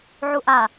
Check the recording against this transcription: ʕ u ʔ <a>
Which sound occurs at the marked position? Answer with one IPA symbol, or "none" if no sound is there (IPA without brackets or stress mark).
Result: a